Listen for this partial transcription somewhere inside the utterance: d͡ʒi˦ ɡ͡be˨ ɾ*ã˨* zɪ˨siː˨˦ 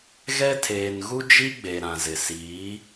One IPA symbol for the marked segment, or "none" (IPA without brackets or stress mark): ã˨